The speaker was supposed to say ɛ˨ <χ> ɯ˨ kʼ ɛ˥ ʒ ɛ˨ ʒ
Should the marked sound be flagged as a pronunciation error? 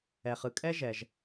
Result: no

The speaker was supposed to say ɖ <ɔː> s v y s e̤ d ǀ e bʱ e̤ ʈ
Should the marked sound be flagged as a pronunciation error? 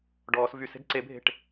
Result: no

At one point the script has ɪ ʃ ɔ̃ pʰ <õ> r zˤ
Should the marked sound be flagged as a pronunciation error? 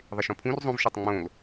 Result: yes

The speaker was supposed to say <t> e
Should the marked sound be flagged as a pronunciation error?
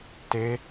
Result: no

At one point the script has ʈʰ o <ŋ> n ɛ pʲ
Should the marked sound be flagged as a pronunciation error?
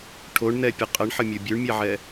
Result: yes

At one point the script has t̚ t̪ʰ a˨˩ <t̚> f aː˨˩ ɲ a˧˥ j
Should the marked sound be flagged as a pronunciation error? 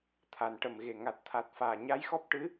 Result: no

